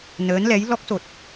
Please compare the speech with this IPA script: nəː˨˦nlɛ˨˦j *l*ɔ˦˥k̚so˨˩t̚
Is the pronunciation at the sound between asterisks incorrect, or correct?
correct